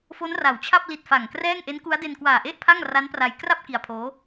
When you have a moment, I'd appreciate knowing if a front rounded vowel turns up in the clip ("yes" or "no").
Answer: no